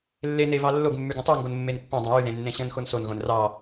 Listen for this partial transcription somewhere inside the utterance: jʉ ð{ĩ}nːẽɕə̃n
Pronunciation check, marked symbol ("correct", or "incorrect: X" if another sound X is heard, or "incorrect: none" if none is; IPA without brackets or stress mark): incorrect: ẽ